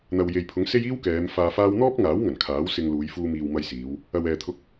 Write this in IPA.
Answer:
n̪ ɐ˨ w j e˨ j pʰ ʊ˨˥ ŋ s e˥ j iː˥ w k ɛː˨˧ m f aː˧ f aː˥ w n̪ ɔː˥ p̚ ŋ aː˨˥ w ŋ ɐ˨˩ n kʰ aː˨˥ w s ɪ˧ ŋ l uː˨˧ j f uː˧ m iː˨ w m ɐ˧ j s iː˨˧ w | ɐ˨ w ɛː˨ t̪ʰ ʊ˥ k̚

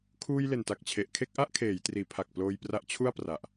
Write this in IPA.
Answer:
kʰ uː˧ j l e˨˩ n t a˨˩ k̚ t͡ɕʰ e˨˩ ʔ kʰ e˥˩ k̚ ʔ a˥˩ ʔ kʰ eː˩˦ j t r iː˩˦ pʰ a˨˩ k̚ p l oː˧ j p r a˦˥ ʔ t͡ɕʰ u˥˩ a̯ p r a˨˩ ʔ

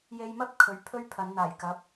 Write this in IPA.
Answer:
j e˧ j m ɐ˥ p̚ kʰ ɵ˨˧ ɥ pʰ ɵ˥ ɥ pʰ ɐ˨˧ n n̪ aː˨˩ j k ɐ˨˥ p̚

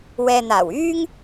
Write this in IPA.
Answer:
w ɛː˨ n̪ aː˨˩ w yː˥ ŋ

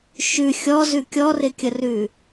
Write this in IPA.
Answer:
ʃ ʉ xʲ ɔ z ʉ kʲ ɔ r ɪ kʲ ə r ʉ

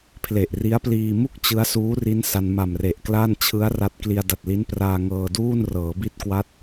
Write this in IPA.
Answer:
pʰ l e˨˩ ʔ r i˦˥ a̯ p l iː˧ m u˥˩ k̚ t͡ɕ ɯ˦˥ a̯ s uː˦˥ r i˦˥ n s a˧ n m a˨˩ m r e˨˩ ʔ k l a˥˩ n t͡ɕʰ ɯ˦˥ a̯ r a˦˥ t̚ k l i˧ a̯ d a˨˩ t̚ l i˦˥ n p r aː˧ ŋ ɤː˧ d uː˥˩ n r ɤː˩˦ b i˦˥ t̚ k w a˦˥ t̚

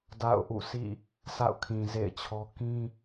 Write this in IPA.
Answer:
d a̰˦˨ ʊ̯ ʔ ṵ˦˨ sʰ ḭ˦˨ | s a̰˦˨ ʊ̯ kʰ ĩ˨ z ḛ˦˨ ɪ̯ t͡ɕʰ ɔ˦ k ĩ˦

